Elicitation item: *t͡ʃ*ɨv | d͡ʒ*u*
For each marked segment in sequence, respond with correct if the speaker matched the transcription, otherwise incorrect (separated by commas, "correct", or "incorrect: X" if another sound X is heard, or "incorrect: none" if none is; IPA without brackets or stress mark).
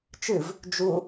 correct, correct